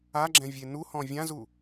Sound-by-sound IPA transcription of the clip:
a ɡ͡ǁ ɛ̃ vʲ e n u h ɔ̃ vʲ ã z u

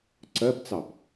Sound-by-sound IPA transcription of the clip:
ǀ ɜ b t͡s ɑ b

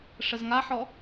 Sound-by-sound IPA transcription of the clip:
ʂ ə z ŋ a ħ ɔ

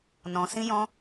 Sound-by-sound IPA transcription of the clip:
n ɔ̃˧ s ĩ˦ j ɔ̃˦

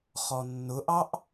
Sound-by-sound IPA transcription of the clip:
χ ɔ nː ʊ ʔ ɑ ʔ

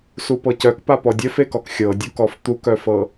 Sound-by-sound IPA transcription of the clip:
s u p ɤ c œ k p a p ɔ dʲ œ f e k ɔ k xʲ ɤ dʲ u k ɔ f t̪ u k œ f ɤ

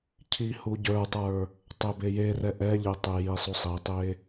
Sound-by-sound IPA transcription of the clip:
cʰ i h u ɟ ə˞ tˤ ə˞ | tˤ e b e j e r ɛ ʔ ɛ ʎ e tˤ e j i sˤ u sˤ i tˤ e

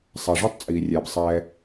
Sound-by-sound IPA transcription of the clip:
sˤ ɛ˨ ʐ œ˦ tˤ t͡sʼ iː˨ rʲ ɛː˨ b sˤ ɛː˦

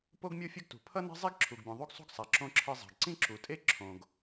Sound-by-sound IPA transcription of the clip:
p o˥ ɡ mʲ o˥ fʲ ʌ˥ ɡ t ṳ˩ pʰ ʌ˥ n ɛ̤˥ zˤ i˥ ɡ ǁʰ u˩ ɡ bʲ ũ˩ ðˤ u˥ ɡ sˤ ṳ˥ ɡ sˤ a˩ ǁ õ˧ ǁʰ e˧ zˤ a̤˩ ɡ ǀ ĩ˥ ǁ u˩ tʼ e˥ ǁʰ õ˩ ɡ

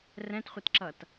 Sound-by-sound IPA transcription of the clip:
r ɛ̃ t χʷ e t ǁ ʌ t

